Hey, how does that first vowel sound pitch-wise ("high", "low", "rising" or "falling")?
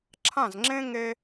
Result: falling